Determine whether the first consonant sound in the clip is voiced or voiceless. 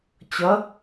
voiceless